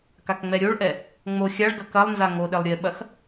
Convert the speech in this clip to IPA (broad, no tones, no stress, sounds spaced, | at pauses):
k a k ŋ͡m ɛ ɾʲ o ɭ ʔ ɛ | ŋ͡m o xʲ a ɭ ɡ ɐ k ɐ lˠ n z a ŋ o ɗ e lˠ ɾʲ e ɓ ɐ x